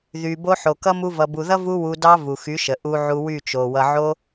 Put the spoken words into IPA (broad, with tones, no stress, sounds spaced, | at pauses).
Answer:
ð y˨ b o˧ ħ o˨ k ʌ˦ m u˧ v ʌ˨ b u˨ ð ʌ˦ v u˦ w u˧ d ɑ˦ v u˨ x y˨˦ ʃ ə˨ ʔ u˧ ʕ u˧ w y˦˨ t͡ʃ o˨ w ʌ˧ ʕ o˦